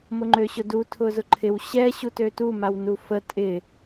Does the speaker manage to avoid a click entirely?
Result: no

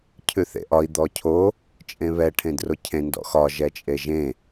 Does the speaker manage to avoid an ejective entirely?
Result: no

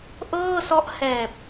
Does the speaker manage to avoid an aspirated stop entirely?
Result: yes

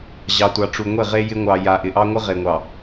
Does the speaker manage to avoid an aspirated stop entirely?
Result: yes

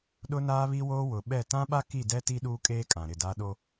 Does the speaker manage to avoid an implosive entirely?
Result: no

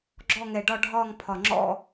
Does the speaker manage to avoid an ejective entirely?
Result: yes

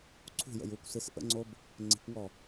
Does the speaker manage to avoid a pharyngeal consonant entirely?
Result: yes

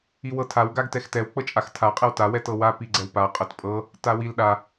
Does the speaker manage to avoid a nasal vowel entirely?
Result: yes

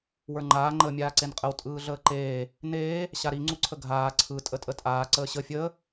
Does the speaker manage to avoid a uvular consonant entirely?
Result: no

